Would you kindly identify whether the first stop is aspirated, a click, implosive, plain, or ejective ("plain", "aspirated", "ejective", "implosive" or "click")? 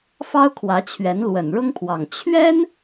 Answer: aspirated